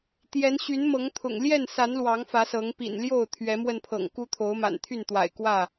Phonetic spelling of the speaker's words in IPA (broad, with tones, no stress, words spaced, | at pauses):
t̪jɛ˨˦n ɕy˨˦n mɤ˨˦ŋt̪ʰʊ̰˨˩ŋ ljɛ˥˨nsa˨˦n lwɑ˨˦ŋ fä˨˦sɤ˨˦ŋ pḭ˨˩nljo˥˨ʊ̯ t̪ʰɥɛ˨˦mwə˧npʰɤ̰˨˩ŋ ku˦ t̪ʰo˨˦ʊ̯ma̰˨˩nt̪ʰy˥˨nt̪wa̰˨˩ɪ̯ kwä˥˨